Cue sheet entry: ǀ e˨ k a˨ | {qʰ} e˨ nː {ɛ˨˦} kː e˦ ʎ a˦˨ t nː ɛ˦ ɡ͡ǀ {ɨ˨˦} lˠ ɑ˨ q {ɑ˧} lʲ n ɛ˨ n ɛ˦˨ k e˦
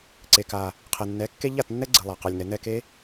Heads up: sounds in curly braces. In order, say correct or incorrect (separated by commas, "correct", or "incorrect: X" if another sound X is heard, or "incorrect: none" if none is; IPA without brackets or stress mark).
correct, correct, incorrect: ɨ˨, incorrect: ɑ˨